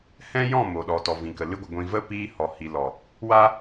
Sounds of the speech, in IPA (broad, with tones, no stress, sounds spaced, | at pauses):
h ɛ̃˦ j ɔ̃˦˨ m o˨ ɗ ɔ˨ t ɔ˨ v ĩ˨ k ə˨ l ɨ˧ ɡʷ ə˨ ɡʷ ĩ˨ v ə˧ p iː˧ h ɔ˨ h i˨ l ɔ˨ | w a˦